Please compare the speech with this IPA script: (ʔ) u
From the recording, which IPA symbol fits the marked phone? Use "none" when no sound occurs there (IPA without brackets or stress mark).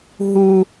ɦ